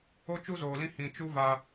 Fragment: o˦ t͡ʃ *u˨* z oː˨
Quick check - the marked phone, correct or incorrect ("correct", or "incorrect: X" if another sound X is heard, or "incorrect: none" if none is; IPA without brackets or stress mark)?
incorrect: u˦